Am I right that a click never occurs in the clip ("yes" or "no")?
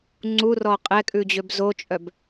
no